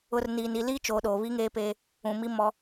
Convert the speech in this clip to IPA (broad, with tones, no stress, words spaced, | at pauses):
ʊ˨rniː˨n i˨liː˦t͡ʃoː˨ ɗoː˨βi˦ŋeː˦peː˦ | ũ˨mi˦ mɔ˦